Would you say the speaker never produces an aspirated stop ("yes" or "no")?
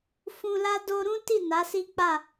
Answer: yes